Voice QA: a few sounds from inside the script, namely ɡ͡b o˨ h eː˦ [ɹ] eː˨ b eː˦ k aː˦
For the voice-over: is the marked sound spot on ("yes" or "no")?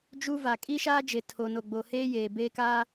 no